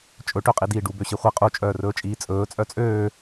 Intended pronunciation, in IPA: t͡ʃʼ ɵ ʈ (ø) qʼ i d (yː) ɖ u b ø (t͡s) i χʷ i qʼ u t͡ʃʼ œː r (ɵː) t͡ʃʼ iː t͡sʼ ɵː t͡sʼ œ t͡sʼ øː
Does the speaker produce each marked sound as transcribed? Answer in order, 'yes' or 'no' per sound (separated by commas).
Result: yes, no, no, yes